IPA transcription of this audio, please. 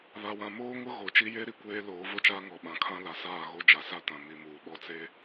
βa˨wã˨moː˦ŋʊ˦ ɣo˨˦t͡ʃi˦ je˦ɾi˨kʷeː˦ loː˨˦vo˦t͡ʃaː˦ŋɔ˨ ɓã˨kʰã˦ la˨saː˦˨ ɣo˦d͡ʒa˨ sa˦tã˨ mi˨muː˨ ɓɔ˦t͡se˦

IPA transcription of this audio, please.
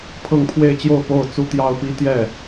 pʰɤ˥˧ŋpʰwe˥˧ɪ̯t͡ɕjo˥˧ʊ̯ po˥˩ʊ̯t͡su˥t̪jɑ˥ʊ̯pi˥ t̪jɛ˥˩

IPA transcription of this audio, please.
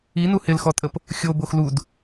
inu hɪlxɔtʼəp | xʲo boxlud

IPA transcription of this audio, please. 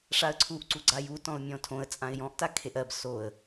ʂaə̯ǀʰuʔ ǀuɡ͡ǀajutɔ̃ʊ̯ mʲɔ̃tʰõə̯ t͡sʼãɪ̯jɔ̃ʔta kʰeʔɜb soə̯

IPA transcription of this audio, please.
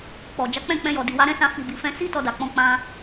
k͡pɔ˨ d͡ʒa˨˦k͡pɛ̃˦˨ k͡pɛ̃˧jɔ˨di˨ wa˨˦ɾɛ̃˦sã˧ fi˧bi˧fɛ̃˦ si˦ tɔ˧da˨k͡pɔ̃˧ k͡pã˧

